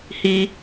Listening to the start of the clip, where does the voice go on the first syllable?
high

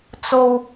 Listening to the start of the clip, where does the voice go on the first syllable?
high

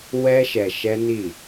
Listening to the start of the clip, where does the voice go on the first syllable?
high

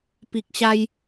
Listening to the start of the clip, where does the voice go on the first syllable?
low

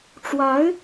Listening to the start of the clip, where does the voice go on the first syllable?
rising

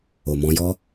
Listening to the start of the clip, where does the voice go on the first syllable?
low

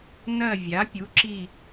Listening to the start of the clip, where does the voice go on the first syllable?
falling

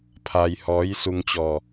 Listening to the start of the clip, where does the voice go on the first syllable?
low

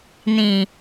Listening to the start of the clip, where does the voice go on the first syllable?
low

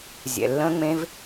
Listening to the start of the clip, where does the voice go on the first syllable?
low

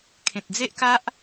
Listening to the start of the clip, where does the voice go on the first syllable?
low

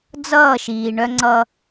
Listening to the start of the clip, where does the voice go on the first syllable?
falling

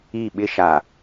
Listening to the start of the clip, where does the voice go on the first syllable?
falling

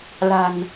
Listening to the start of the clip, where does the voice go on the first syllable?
low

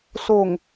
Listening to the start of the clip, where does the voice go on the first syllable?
low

